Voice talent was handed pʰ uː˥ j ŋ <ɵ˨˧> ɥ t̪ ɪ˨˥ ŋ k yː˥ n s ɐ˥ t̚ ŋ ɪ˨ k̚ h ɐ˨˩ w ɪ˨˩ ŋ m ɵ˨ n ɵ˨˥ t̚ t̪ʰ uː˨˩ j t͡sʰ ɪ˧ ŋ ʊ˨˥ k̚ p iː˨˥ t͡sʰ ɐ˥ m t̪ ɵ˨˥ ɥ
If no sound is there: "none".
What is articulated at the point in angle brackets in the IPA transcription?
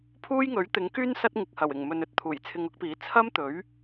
ɵ˨˥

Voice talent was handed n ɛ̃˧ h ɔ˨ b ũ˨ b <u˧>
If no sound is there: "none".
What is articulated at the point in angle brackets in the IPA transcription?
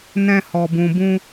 ũ˧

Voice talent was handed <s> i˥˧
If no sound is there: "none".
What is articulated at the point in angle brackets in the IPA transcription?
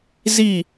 z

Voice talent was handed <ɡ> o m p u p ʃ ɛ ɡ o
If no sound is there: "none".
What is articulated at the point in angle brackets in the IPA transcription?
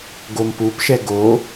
ɡ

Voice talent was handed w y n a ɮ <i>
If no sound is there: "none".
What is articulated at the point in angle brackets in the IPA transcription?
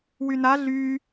y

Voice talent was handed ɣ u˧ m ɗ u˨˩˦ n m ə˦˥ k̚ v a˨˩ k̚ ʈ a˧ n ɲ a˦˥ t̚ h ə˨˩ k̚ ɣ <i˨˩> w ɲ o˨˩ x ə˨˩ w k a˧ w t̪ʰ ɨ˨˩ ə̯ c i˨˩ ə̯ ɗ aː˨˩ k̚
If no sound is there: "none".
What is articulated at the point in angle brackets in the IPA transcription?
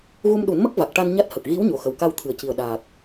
i˧˥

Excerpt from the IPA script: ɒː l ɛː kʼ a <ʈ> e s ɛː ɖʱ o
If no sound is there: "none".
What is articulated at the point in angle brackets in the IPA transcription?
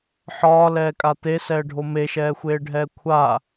t̪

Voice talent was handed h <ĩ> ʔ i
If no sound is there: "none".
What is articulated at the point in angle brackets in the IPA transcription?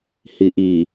i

